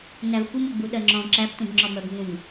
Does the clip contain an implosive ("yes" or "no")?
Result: yes